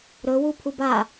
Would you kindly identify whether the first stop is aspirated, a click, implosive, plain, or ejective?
aspirated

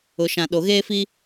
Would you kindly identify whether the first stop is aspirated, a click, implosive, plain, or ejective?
implosive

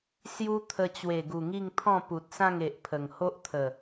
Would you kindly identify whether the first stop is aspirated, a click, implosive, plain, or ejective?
aspirated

